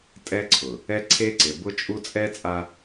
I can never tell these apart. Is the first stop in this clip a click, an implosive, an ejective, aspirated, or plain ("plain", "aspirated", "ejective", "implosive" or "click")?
ejective